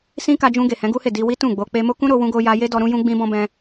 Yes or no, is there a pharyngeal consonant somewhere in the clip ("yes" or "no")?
no